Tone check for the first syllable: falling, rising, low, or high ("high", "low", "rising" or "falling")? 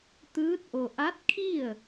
rising